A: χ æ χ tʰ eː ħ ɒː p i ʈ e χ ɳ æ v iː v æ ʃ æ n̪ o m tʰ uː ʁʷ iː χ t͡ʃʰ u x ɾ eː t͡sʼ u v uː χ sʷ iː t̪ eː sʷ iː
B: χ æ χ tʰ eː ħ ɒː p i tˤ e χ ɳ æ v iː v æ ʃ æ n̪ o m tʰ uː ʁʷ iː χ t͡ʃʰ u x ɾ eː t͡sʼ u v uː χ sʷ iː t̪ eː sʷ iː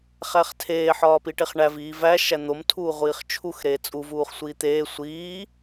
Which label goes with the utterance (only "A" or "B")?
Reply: A